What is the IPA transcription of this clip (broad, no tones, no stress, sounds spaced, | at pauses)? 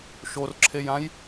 ʃ o r ǁʰ e j ã j